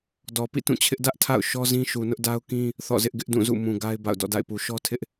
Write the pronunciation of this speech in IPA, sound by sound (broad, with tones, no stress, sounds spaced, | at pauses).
d ɔ˨ p ḭ˦˨ t ũ˦˨ t͡ɕʰ ɪ˦ ʔ d ä˦ ʔ tʰ a̰˦˨ ʊ̯ ʃ ɔ˦ z ĩ˦ ʃ u˨ n ʊ˦ ʔ d a˦ ʊ̯ k ĩ˦ | θ ɔ̰˦˨ z ɪ˦ ʔ ɡ ɪ˦ ʔ d ũ˦˨ z ṵ˦˨ m ũ˨ ɡ a˦ ɪ̯ b a̰˦˨ ʊ̯ d ɔ̰˦˨ d a̰˦˨ ɪ̯ p u˨ ʃ ɔ˦ tʰ ɪ˦ ʔ